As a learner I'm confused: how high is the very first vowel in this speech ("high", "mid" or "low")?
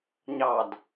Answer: low